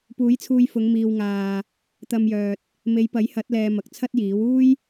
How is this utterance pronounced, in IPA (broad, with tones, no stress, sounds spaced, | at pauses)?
p uː˨˥ j t͡sʰ uː˧ j f ʊ˨˧ ŋ m iː˨ w ŋ aː˨ | t̪ ɐ˧ m j œː˨ t̚ | m e˨˧ j p ɐ˨˥ j h ɐ˨˥ t̚ l ɛː˨ m ɐ˨ k̚ t͡sʰ ɐ˥ t̚ j iː˨˥ w uː˥ j